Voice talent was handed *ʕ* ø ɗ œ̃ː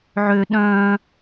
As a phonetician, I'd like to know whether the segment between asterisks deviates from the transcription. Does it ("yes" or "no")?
no